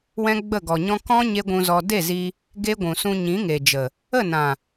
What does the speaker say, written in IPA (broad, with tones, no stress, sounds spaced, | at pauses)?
w ɛ̃˦ ɡ͡b ə˦˨ ɡ ɔ˨ ɲ ɔ̃˦ k ɔ̃˦ ɲ e˦ ɡʷ ũ˧ z ɔ˧ d e˦˨ z i˧ | ɡ e˦ ɡʷ ũ˨ s ũ˧ ɲ ĩ˨˦ ŋ e˨ d͡ʒ ə˨ | ə˦˨ n ã˨